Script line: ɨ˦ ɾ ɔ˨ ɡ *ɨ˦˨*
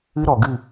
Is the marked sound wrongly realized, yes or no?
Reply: no